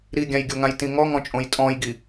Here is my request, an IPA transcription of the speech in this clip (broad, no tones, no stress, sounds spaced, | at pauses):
ɾ i ɡʲ ã j ɡʲ o ŋ ã j t ĩ ŋ ɔ ŋ ɔ̃ t͡ʃʼ õ j tʼ ɔ̃ j ɡ i